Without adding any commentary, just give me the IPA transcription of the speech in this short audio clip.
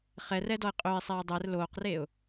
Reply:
χ ɛ r ɛ d ɔ ɪ̯ qʼ ø ɪ̯ sˤ ɛː dˤ ɛ r l oː q r eː ʊ̯

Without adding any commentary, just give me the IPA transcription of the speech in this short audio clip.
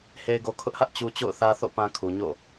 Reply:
h e˨ ɪ̯ ɡ o˨ kʰ ʊ˦ ʔ h ä˦ ʔ t͡ɕ u˨ t͡ɕ o̰˦˨ ʊ̯ θ ä˦ θ o̰˦˨ p ã˨ kʰ u˨ ɲ o̰˦˨

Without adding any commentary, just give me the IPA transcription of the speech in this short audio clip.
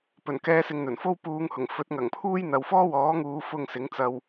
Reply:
p ɵ˨˩ n k ɛː˧ s ɪ˨ ŋ n̪ ɵ˨˩ n f o˥ w p uː˨˧ ŋ h ʊ˨˩ ŋ f ɵ˨˥ t̚ ŋ ɐ˨˩ ŋ pʰ uː˥ j n̪ ɐ˨ w f ɔː˥ w ɔː˨˥ ŋ uː˨˧ f ʊ˧ ŋ s ɪ˨˥ ŋ t͡s ɐ˧ w

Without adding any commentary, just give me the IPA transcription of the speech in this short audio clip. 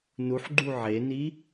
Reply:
n u ħ ɡ͡ǃ u ʕ e n i

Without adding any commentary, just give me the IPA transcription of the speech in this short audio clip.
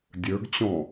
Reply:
dʲ ə˞ ɡ t͡ɕ ɔ̃

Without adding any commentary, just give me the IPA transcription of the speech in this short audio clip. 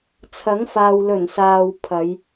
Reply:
t͡sʰ ɐ˨˥ ŋ f aː˨ w l ɵ˨˩ n s aː˨ w pʰ ɐ˨˧ j

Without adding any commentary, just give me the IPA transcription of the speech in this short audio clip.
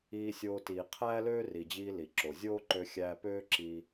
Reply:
iː˧ sʲ oː˧ t iː˩ qʰ æː˥ l øː˥ r i˩ d͡ʑ iː˧ l i˩ ǁ o˩ zʲ oː˥ ǃ ø˧ xʲ æː˧ p øː˥ ǁ iː˧

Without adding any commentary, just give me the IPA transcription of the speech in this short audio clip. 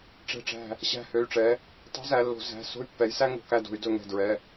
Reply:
ʈ͡ʂ ɛ̤˧˩ ʈ͡ʂ æ̤˧˩ | ɕ æ̤˧˩ h ø˩˧˩ y̯ ʈ͡ʂ ɛ˩˧ | tˤ ɛ̤˧˥ z æ˩˧ lː o̤˩˧ z æ̤˩˧˩ s o̤˥ y̯ pː ɛ˩˧ j s æ˥ ŋ o̤˩˧ k æ˧˩ d o̤˧˩˧ y̯ d ɵ˧˩ ŋ ɛ̤˧˩ d ɹ ɛ˩˧˩

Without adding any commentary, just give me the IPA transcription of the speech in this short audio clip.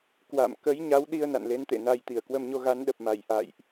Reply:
k w a̰˧˨ m k ə˨˦ j ɲ a˨˦ w ɗ i˧ ə̯ n a̰˧˨ n l e˨˦ n t̪ ḛ˧˨ n a˧ j t̪ i˧˩ ə̯ k w ə˧ m ɲ o˧ ɣ a˨˦ n ɗ ə˨˩ p̚ m a˧˩ j ʔ a̰˧˨ j ʔ

